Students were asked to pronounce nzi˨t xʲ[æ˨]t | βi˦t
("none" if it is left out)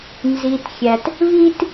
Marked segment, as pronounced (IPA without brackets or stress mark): æ˨